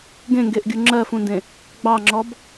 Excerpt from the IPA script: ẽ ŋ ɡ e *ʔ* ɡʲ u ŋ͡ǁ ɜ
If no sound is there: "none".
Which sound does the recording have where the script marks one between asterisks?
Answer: ʔ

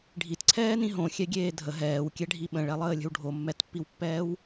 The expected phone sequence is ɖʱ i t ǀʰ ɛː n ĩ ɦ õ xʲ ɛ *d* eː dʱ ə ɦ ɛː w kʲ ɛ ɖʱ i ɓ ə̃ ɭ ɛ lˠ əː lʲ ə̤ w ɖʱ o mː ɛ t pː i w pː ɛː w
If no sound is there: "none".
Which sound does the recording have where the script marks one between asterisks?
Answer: ɡʲ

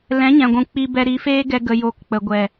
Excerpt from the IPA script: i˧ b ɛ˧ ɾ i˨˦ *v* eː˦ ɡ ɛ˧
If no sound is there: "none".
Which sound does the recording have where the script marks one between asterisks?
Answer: f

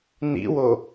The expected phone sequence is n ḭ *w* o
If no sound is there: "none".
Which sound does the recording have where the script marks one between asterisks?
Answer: w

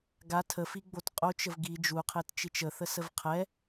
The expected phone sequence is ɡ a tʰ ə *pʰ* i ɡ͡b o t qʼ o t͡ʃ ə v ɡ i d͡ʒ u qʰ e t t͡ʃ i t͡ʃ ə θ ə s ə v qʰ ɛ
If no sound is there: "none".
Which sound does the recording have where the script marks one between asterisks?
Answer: f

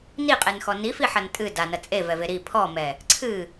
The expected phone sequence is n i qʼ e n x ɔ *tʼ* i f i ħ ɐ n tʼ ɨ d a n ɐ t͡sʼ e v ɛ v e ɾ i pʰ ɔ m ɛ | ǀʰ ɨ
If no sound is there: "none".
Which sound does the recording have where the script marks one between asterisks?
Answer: n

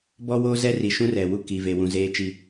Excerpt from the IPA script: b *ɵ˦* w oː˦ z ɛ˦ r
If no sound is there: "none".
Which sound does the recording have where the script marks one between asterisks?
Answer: ɔ˦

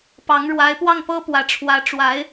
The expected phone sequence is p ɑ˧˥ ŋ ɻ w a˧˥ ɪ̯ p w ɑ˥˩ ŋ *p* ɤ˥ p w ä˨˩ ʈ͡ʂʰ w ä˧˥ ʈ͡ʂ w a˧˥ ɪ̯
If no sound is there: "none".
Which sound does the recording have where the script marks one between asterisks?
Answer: p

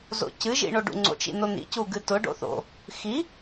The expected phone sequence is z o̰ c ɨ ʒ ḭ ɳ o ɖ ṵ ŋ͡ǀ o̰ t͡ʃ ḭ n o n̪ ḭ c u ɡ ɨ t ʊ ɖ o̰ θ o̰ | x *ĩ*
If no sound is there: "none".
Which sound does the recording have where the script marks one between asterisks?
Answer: i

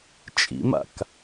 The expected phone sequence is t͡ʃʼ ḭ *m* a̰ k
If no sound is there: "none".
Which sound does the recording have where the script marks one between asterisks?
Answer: m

